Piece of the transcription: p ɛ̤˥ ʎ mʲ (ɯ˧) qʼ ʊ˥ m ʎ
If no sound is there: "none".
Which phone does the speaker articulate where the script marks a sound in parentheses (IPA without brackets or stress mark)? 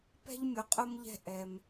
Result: ʊ˧